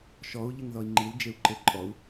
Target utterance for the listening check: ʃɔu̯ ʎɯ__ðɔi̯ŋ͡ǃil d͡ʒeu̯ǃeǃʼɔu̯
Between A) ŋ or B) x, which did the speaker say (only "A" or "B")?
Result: A